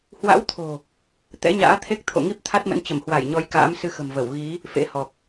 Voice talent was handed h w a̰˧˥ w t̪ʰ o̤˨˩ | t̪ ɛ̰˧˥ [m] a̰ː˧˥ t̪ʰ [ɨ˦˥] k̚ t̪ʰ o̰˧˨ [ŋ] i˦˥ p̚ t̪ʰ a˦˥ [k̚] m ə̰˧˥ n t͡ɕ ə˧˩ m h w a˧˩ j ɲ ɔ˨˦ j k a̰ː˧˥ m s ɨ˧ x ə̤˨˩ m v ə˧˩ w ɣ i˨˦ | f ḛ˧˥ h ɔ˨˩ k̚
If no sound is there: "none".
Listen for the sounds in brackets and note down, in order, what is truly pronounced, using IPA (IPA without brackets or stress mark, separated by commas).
ɲ, e˦˥, ŋ, t̚